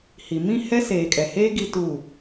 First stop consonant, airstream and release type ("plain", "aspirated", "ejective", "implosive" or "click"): ejective